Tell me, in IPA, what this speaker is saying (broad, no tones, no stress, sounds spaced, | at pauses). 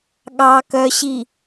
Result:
ɠ ɑ k œ ɕ i